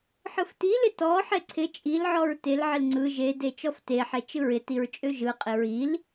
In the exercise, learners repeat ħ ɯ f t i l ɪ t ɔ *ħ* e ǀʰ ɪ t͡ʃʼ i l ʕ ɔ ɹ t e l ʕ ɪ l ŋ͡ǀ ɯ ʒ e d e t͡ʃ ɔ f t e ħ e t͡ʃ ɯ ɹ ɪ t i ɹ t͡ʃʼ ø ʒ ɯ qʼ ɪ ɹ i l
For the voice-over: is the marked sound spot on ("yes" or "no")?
yes